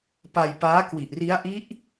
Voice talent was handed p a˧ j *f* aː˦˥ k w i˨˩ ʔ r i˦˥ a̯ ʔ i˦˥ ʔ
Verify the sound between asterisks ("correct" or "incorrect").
incorrect